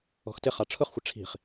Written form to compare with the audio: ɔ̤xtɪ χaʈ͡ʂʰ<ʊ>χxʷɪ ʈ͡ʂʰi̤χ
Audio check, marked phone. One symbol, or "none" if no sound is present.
ʊ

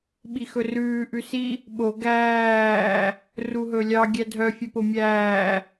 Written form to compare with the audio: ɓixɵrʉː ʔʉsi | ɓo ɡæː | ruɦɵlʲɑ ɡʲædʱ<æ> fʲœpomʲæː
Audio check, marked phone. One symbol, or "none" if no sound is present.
œ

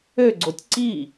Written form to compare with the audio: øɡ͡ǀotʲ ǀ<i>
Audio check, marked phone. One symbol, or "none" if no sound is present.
i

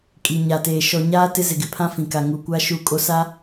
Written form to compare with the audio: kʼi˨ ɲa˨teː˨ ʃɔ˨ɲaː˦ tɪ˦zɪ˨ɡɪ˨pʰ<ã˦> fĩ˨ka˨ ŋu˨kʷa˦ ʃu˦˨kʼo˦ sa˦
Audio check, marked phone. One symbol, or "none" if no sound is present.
ã˦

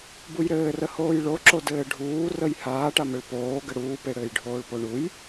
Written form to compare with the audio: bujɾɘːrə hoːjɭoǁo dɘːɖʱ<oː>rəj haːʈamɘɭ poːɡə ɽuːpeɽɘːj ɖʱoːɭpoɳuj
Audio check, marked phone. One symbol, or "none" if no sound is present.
uː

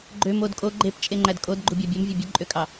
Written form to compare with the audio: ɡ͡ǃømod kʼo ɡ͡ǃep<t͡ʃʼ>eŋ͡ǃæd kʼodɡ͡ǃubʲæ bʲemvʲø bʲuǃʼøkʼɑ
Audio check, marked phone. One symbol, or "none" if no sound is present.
t͡ʃʼ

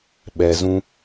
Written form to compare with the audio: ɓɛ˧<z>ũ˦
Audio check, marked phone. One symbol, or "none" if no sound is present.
z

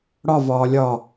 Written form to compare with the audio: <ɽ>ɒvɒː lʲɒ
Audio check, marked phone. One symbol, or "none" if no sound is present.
ɽ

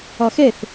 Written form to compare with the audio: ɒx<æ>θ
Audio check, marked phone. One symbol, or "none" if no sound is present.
ɛ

